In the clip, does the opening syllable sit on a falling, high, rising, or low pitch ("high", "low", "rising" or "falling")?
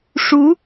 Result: rising